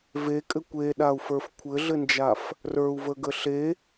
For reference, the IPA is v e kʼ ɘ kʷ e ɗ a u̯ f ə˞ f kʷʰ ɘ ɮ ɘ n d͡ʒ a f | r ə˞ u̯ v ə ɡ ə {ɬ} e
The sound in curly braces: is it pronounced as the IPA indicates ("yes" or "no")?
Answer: yes